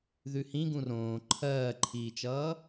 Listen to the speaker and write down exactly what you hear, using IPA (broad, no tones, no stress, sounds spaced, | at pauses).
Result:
ð ʉ h ĩ ɡ ũ r õː ǃʰ ɜː ǃʰ iː t͡ʃ ʌː